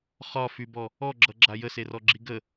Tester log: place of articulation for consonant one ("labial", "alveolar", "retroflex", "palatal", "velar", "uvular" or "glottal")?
uvular